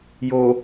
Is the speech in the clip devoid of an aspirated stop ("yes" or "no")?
yes